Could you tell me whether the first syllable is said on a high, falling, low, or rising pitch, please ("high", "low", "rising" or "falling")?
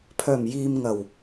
low